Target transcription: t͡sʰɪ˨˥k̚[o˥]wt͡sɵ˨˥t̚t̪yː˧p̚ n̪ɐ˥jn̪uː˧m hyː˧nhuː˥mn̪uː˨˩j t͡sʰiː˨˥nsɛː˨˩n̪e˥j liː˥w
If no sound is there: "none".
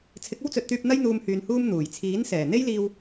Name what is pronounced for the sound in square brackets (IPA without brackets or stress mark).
o˥